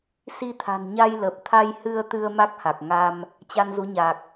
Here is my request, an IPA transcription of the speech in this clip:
s i˧ t̪ʰ a̤˨˩ n ɲ a˧ j l ə˨˩ p̚ t̪ʰ a˧ j h ɨ˧ ə̯ t̪ ɨ˧ ə̯ m a˦˥ k̚ h a˨˩ k̚ ŋ a˧ m | t͡ɕ a˧ n z u˨˦ ɲ a˨˩ k̚

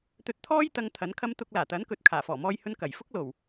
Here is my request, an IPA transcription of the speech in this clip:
t̪ ɵ˧ t̚ t̪ʰ ɔː˥ j t̪ ɐ˧ ŋ t̪ʰ ɐ˨˥ n kʰ ɐ˥ m t̪ ʊ˧ k̚ l aː˨˩ t̪ ɐ˨˥ n k ɵ˨ t̚ kʰ aː˨˩ f ɔː˨˩ m ɔː˧ j h ɵ˧ n k ɐ˨˩ j f ʊ˥ k̚ l o˨˩ w

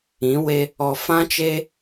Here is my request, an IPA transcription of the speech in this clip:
ĩ˨˦ w e˦ | ɔ˨ f ã˦ t͡ʃ e˦

